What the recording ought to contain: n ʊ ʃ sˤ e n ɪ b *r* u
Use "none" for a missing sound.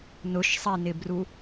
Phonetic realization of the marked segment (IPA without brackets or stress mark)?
r